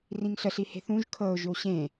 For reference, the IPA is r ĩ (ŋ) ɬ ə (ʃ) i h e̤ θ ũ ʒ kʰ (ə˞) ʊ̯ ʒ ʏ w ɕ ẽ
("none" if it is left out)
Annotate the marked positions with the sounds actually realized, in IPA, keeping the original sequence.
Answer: ŋ, ɬ, ɤ

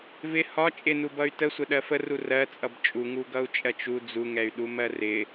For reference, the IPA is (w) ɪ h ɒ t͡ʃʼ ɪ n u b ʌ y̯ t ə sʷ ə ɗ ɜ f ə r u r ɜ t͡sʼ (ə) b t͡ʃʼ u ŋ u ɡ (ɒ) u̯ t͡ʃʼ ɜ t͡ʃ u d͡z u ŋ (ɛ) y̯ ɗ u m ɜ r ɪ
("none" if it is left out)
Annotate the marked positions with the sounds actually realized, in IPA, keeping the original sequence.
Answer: v, ʌ, ʌ, ɛ

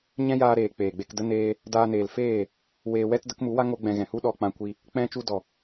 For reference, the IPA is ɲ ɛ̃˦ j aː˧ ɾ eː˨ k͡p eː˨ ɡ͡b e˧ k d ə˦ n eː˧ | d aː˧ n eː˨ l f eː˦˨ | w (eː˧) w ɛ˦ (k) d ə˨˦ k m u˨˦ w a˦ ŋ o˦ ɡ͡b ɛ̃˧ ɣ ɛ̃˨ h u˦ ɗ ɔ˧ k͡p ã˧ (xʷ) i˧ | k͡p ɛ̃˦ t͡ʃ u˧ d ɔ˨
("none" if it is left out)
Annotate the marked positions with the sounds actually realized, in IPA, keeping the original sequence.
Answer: eː˧, t, kʷ

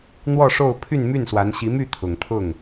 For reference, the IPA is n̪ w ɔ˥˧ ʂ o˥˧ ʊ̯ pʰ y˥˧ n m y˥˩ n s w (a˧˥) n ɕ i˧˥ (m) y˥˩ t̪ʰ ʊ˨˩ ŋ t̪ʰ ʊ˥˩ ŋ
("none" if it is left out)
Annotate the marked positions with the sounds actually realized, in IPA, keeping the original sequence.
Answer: a˧˥, m

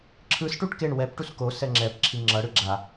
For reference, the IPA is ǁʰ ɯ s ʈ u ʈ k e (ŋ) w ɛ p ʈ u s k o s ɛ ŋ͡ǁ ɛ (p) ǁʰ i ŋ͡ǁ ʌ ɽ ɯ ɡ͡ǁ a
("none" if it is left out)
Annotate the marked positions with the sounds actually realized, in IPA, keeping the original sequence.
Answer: ɳ, p

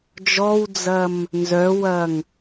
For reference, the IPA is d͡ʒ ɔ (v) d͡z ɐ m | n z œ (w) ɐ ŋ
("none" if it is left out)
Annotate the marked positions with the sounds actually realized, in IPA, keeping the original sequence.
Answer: w, w

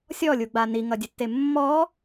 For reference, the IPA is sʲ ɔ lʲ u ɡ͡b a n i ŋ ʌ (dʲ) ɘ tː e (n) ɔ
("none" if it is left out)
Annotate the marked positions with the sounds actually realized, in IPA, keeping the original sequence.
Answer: dʲ, mː

